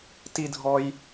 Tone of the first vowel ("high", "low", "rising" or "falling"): high